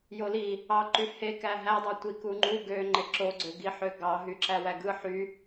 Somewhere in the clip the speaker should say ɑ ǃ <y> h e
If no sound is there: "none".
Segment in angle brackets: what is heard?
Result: y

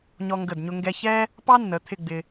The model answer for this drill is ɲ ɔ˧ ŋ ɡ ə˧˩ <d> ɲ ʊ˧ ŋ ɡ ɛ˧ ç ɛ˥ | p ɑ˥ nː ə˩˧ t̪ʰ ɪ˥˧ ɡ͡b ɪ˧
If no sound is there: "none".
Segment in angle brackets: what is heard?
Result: d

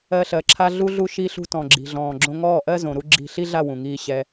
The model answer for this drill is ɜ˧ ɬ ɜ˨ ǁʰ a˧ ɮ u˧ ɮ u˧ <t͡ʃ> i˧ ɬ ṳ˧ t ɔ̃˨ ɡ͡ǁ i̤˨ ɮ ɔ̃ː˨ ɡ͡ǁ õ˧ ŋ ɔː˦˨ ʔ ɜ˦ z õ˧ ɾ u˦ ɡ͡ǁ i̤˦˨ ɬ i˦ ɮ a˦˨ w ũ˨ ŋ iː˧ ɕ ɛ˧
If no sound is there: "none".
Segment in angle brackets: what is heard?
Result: ʃ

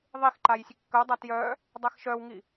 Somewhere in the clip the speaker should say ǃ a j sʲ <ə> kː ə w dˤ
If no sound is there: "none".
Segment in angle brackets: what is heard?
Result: ə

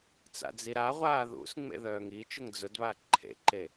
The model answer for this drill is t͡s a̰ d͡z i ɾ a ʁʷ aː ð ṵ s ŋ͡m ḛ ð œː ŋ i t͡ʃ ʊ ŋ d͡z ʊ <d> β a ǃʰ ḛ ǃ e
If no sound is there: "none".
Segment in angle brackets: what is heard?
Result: d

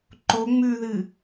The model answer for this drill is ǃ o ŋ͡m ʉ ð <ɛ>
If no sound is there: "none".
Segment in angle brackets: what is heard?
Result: ɨ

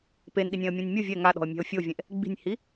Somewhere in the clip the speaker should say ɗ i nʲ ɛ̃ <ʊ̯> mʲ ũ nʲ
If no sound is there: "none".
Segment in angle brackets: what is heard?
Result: ə̯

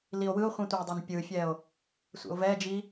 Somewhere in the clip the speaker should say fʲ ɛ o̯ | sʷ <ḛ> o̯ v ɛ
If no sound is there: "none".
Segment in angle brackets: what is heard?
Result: ḛ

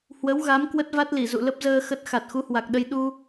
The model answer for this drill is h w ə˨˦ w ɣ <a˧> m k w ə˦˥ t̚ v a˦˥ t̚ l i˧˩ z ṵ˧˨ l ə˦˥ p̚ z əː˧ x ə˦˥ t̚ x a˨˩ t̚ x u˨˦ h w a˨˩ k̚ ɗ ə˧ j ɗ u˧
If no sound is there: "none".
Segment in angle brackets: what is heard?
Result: a˨˦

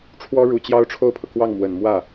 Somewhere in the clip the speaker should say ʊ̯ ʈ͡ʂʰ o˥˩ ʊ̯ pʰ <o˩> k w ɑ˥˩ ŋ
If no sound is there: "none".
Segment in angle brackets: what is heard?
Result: ɤ˩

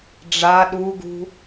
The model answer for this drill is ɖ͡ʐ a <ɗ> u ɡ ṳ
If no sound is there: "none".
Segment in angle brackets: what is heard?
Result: ɗ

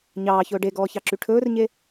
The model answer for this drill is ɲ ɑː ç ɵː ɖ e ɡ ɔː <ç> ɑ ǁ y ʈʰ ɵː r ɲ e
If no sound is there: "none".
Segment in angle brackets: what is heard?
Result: ç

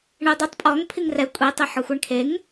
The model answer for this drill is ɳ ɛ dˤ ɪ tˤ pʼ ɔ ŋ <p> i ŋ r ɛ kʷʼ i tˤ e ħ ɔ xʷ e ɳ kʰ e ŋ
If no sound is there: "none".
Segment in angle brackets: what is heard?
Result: pʰ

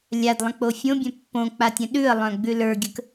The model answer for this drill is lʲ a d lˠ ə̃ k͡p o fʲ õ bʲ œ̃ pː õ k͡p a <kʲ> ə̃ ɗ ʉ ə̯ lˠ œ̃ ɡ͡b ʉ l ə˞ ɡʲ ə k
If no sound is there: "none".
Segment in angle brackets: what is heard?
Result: tʲ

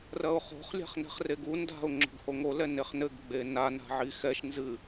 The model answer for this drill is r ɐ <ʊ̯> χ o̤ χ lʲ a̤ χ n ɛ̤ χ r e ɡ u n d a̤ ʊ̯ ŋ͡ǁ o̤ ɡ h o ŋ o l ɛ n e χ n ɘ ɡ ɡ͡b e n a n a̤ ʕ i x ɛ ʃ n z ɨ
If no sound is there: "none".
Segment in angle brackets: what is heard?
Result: ʊ̯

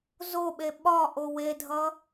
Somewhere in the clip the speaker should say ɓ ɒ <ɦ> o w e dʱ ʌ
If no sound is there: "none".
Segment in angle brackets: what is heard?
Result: ʔ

